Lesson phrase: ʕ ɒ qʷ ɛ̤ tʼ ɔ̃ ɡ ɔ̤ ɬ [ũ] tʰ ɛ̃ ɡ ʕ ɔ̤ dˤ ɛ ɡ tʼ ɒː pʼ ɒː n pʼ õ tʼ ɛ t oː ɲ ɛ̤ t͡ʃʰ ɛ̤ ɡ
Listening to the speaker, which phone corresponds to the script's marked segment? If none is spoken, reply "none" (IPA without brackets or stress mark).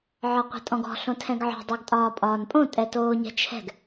õ